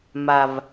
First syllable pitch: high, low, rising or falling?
low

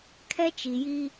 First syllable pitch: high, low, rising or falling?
high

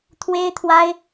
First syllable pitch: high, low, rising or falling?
high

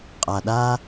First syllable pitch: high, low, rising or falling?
low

